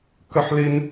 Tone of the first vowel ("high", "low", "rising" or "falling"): high